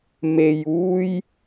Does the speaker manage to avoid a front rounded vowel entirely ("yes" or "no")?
yes